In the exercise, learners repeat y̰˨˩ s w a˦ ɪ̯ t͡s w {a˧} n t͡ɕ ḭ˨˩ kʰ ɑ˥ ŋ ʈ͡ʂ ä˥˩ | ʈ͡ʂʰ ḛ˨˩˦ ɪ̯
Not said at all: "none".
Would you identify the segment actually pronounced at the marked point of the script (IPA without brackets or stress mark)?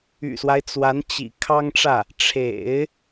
a˧˥